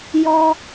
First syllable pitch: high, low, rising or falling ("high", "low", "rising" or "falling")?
high